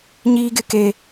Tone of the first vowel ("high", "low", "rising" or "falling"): high